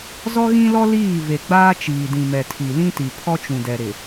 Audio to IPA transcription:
z ɔ˦ ɣ ĩ˦ l ɔ˦ l iː˦˨ v e˨ ɡ͡b aː˦ t͡ʃ iː˨ d ĩ˨ m ɛ˨ tʰ i˨ l ĩ˦ t i˨ pʰ ɔ˦ t͡ʃ ũ˨ d ɛ˨ ɾ ɪ˨

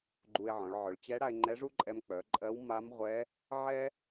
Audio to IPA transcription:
ɡ͡ǃ u˧ e̯ ʕ ɔ̃˩˧ ɭ ʕ œ˩˧ ɭ t͡ɕ ɛ˧˥ ɽ a˧ e̯ ŋ͡ǃ ɛ˧˥ ʐ u˥ ǃʼ ɛ˧ m k͡p œ˩˧ ǃʼ ɜ˧˥ w m a˧˥ m ʁʷ ɛ˧˥ | ʕ ɛ˥

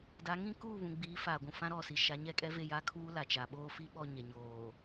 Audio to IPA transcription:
d a˨˦ ŋ ĩ˦ k uː˦˨ β ũ˨ ɡ͡b iː˨˦ f aː˨ ɡʷ ũ˨ f ã˦ ɾ ɔ˦˨ s i˨ ʃ a˨˦ ɲ ɛ˦˨ kʼ ɛ˦ v e˦˨ j a˦ kʰ uː˦ l a˨ t͡ʃ a˨ ɓ oː˦ f i˦ ɓ ɔ˦˨ ɲ ɛ˨ ɲ oː˨

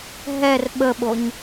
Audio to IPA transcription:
ɦ ɛ r ɓ ə ɓ o ɲ

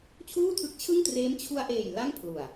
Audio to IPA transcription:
t͡ɕʰ uː˥˩ tʰ ɯ˦˥ k̚ t͡ɕʰ ɯ˥˩ ŋ t r eː˦˥ m t͡ɕʰ u˧ a̯ ʔ eː˨˩ j l a˥˩ ŋ pʰ l u˨˩ a̯

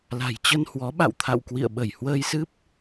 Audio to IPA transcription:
l a̤˨˩ j t͡ɕ ə˧ n h w ɔ˨˦ ɓ a̰˧˨ w t̪ʰ a̰˧˨ w k w ḭ˧˨ ə̯ ɓ ə˧˩ j h w əː˧ j s ɨ˦˥ p̚

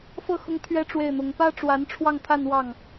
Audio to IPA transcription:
f ɤ˥˩ x ʊ˥ ŋ t̪ʰ ɥ ɛ˥ ʈ͡ʂ w e˥˩ ɪ̯ n̪ ʊ˧˥ ŋ p ä˥ ʈ͡ʂ w a˧˥ n ʈ͡ʂʰ w ɑ˥˧ ŋ t̪ʰ a˥˧ n w ɑ˥˩ ŋ

